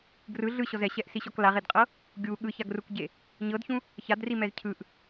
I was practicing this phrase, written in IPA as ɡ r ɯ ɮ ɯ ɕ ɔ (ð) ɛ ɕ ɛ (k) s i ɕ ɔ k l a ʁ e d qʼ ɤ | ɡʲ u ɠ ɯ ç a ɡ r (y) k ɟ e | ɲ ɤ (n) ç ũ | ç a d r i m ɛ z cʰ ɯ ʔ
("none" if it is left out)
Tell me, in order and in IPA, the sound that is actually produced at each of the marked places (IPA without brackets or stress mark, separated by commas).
z, ʔ, u, d